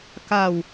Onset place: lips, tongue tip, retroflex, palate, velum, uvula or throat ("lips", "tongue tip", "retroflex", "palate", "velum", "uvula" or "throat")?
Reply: velum